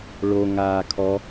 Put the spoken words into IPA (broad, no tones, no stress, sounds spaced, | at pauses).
ɭ o ŋ aː kʰ ɔ